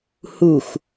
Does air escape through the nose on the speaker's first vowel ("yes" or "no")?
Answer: no